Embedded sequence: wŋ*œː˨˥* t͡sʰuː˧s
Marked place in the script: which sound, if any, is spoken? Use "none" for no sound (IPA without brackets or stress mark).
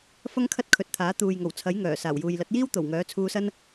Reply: œː˨˥